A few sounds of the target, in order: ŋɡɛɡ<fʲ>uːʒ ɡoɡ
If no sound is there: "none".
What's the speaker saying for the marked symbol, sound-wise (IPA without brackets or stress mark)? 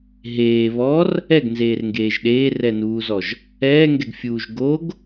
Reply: fʲ